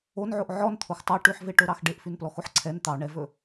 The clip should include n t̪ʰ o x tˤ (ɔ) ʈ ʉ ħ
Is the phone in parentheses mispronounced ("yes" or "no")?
yes